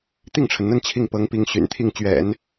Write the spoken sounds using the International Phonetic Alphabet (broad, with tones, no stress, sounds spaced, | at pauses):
t̪ i˥˩ ŋ ʈ͡ʂʰ ə˩ n n̪ ə˥˧ n t͡ɕʰ i˥˩ ŋ p ɤ˧˥ ŋ p i˧˥ ŋ ɕ y̰˨˩ n t̪ʰ i˥˩ ŋ t͡ɕ ɥ ɛ̰˨˩˦ n